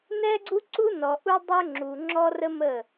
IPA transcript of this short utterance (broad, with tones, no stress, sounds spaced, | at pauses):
n ɛ˦ ɡ͡ǀ u˦ ǀ u˦ n ɔ˨ ʔ u˦ dˤ ø˦ ŋ͡ǁ u˨ ŋ͡ǁ ɔ˦ r ə˦ m ə˦˨